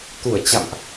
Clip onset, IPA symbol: t̪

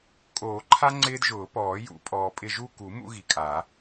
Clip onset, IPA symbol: kʼ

